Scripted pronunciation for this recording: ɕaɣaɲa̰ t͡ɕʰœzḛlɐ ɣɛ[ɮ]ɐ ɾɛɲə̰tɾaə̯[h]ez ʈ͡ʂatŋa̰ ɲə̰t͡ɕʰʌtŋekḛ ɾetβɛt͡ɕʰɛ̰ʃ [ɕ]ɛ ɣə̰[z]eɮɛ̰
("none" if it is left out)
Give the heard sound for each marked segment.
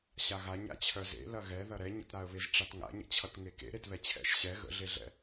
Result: ð, β, ɕ, ɮ

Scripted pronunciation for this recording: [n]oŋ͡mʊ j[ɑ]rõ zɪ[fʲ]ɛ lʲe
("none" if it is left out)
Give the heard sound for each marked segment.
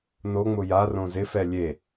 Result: n, a, f

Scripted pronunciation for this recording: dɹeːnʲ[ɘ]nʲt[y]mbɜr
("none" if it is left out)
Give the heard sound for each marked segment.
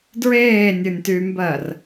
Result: ɘ, y

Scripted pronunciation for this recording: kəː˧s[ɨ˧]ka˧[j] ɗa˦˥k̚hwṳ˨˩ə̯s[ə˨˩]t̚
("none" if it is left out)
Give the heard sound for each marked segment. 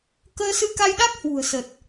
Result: ɨ˧, j, ə˨˩

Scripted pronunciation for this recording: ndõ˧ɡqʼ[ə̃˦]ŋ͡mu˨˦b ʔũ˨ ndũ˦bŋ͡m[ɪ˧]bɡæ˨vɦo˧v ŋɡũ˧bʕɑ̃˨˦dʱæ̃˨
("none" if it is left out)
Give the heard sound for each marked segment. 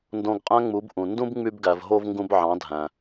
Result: æ̃˦, y˧

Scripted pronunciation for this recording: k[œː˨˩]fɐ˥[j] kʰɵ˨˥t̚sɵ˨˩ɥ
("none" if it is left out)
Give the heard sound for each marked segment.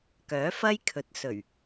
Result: œː˨˥, j

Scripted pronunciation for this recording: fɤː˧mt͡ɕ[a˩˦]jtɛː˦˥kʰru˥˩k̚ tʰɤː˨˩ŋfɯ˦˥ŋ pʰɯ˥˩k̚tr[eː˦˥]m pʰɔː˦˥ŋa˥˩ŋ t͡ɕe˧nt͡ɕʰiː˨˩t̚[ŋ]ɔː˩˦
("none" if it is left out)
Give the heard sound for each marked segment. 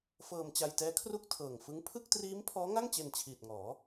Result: a˧, iː˦˥, ŋ

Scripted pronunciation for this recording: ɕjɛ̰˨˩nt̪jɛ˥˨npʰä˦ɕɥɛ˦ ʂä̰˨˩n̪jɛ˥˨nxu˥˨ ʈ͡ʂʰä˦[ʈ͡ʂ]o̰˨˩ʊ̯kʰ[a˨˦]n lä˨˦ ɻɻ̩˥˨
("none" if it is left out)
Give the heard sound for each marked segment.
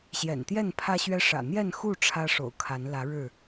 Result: ʂ, a˨˦

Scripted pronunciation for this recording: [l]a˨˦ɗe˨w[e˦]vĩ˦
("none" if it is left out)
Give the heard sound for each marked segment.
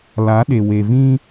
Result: l, e˨

